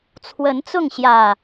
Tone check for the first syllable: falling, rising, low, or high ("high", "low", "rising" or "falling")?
rising